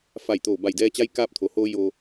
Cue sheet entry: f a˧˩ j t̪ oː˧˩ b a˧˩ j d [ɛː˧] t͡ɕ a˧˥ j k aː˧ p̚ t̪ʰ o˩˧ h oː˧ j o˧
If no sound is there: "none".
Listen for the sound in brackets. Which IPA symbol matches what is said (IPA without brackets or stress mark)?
ɛː˧